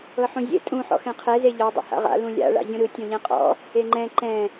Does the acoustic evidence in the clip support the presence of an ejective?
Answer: yes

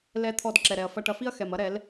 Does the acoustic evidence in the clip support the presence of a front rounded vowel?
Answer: no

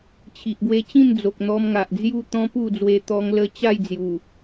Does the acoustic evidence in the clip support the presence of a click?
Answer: no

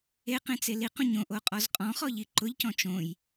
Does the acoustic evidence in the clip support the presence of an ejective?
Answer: yes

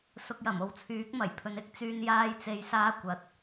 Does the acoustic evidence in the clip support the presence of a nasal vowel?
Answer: no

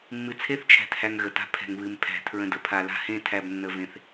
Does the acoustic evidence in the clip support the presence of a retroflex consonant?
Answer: no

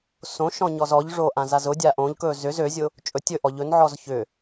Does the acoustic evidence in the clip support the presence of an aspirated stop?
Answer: no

